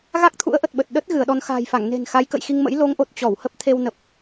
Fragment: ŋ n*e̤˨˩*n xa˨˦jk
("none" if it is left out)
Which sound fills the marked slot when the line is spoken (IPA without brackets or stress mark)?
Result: e̤˨˩